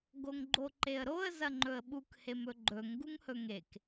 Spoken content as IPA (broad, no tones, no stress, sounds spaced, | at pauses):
ɡ o ŋ ɡ͡ǃ o ǃ e ə̯ ɾ o ə̯ z ɐ ŋ͡ǃ ɵ ə̯ ɓ u k h e m ɵ ɡ͡ǃ ɵ ŋ ɡ u ŋ h ɵ ŋ e k